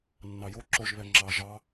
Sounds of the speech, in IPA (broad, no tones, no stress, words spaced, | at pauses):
nːɑjo ǁoʒ βɛŋ͡ǁɑ ʒɑ